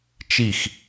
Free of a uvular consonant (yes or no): yes